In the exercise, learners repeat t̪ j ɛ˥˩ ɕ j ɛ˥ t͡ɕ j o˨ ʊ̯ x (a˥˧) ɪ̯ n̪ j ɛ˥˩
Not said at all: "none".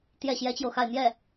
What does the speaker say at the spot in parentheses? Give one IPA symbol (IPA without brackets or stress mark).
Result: a˥˧